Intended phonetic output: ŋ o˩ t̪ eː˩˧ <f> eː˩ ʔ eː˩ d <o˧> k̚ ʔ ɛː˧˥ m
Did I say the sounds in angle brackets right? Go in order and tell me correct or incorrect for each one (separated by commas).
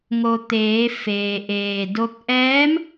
correct, correct